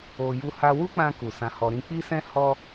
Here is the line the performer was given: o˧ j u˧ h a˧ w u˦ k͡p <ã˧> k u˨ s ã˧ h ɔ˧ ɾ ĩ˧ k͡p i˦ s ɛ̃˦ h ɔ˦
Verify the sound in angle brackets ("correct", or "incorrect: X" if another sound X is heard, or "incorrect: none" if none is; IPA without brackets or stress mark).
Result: correct